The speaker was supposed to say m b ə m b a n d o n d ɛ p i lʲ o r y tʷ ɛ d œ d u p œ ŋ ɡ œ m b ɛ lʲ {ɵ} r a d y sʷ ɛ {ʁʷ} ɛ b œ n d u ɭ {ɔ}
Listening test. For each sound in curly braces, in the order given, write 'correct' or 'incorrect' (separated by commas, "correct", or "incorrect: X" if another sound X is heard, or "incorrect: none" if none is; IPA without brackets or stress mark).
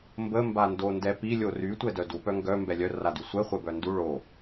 incorrect: œ, incorrect: χʷ, incorrect: o